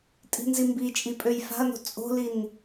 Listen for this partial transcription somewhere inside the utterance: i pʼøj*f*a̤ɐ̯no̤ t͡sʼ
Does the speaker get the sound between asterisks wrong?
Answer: no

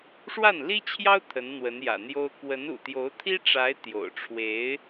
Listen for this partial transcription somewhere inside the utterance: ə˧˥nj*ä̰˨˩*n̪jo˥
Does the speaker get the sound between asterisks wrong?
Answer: no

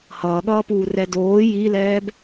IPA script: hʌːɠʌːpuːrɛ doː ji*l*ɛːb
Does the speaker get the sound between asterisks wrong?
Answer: no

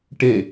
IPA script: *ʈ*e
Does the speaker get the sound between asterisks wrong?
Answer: no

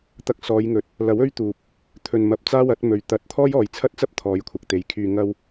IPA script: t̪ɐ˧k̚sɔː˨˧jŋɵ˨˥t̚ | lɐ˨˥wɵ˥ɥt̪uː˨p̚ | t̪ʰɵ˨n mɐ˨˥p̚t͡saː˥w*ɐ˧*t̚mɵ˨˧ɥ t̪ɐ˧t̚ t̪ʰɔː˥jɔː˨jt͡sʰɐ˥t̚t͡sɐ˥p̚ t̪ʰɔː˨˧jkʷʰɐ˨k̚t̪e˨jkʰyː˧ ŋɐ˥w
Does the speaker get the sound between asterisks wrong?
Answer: yes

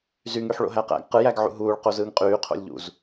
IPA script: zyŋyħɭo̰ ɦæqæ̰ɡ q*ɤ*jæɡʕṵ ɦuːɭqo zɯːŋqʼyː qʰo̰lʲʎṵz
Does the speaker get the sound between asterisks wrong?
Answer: yes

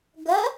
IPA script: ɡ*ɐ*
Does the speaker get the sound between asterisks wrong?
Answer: no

